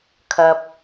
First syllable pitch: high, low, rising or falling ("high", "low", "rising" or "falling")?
low